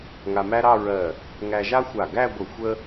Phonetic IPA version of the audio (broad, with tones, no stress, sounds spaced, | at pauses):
ŋ a˧ m æ˥ ɾ ɑ˥˧ ɹ ɜ˧˩ | ŋ æ˧ ʒ a˥ xʷ a˧˩ ɡ æ˥˧ ɡʷ ə˧˩ xʷ ə˥